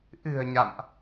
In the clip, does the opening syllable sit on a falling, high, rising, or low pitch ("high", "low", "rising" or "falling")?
low